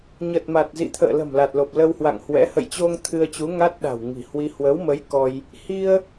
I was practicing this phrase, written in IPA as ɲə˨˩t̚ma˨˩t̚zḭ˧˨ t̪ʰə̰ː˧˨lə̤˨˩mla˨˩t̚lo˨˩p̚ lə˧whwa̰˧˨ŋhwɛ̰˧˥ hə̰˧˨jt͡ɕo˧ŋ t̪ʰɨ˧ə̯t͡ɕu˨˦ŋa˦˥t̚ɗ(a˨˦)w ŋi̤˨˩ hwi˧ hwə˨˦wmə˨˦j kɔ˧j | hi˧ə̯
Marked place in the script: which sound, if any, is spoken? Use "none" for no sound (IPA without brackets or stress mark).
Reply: a̤˨˩